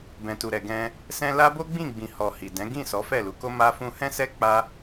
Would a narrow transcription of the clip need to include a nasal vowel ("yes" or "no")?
yes